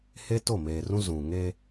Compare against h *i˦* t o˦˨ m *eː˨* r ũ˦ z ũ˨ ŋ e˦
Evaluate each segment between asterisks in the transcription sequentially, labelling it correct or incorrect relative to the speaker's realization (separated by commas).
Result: incorrect, correct